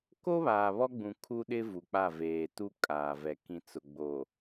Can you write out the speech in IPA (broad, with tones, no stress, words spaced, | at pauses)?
ko˦βaː˨ βɔ˦ɡ͡bũ˨ kʰu˦ɗɪ˦ vu˨k͡pa˦˨veː˨ tu˦kʼaː˨vɛ˨ kĩ˨t͡sʊ˨ ɡ͡bo˨